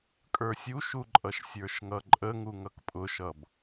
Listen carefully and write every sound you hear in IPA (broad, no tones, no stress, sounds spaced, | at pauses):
kʼ ə˞ sʲ u ʃ u ǃʼ ʌ ʃ sʲ ə˞ ʃ ŋ ʌ ǃʼ ə ŋ u ŋ ʌ k pʼ ʊ ʃ ʌ b